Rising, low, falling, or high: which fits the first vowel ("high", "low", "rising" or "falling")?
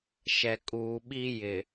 low